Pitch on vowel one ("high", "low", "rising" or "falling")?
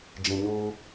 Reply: low